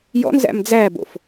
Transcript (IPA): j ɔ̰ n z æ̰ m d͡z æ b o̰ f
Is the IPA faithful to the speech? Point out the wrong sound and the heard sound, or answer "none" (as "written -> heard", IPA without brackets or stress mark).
none